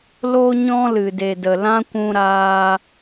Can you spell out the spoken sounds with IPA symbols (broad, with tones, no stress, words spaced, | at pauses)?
lo˧ɲɔ̃˧ lɨ˨de˨də˨ lã˦kʷũ˧ɾaː˧